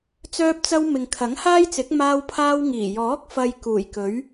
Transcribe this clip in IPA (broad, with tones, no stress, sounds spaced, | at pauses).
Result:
t͡s œː˥ p̚ t͡s ɐ˥ w m ɪ˨ ŋ kʰ ɐ˨˥ ŋ h aː˥ j t͡s ɪ˨˥ k̚ m aː˥ w pʰ aː˥ w ŋ iː˨˩ j ɔː˨˥ k̚ f ɐ˨ j k uː˨˩ j k ɵ˨˥ ɥ